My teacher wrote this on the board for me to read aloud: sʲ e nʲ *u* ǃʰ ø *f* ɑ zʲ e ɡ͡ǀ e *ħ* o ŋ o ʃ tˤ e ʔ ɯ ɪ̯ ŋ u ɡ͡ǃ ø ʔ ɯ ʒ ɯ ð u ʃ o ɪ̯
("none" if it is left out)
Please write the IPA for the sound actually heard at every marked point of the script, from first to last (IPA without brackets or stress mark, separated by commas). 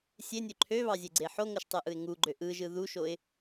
ø, β, ħ